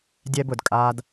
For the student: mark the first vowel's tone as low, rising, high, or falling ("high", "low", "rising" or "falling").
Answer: high